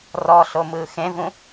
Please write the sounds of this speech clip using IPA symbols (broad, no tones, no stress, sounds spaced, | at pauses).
r ɔ ɬ o m ɯː x ẽ v ũ